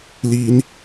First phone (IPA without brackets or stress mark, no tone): l